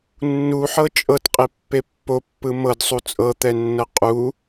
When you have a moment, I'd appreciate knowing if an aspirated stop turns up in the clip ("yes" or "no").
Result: no